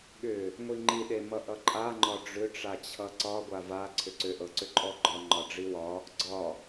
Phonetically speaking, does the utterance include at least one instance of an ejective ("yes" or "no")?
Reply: yes